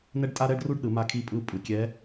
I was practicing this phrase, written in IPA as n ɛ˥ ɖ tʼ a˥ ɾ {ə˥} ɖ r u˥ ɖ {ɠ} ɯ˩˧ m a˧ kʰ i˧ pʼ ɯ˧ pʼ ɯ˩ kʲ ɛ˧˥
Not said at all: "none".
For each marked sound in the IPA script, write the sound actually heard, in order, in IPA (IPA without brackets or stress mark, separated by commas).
ɛ˥, ɗ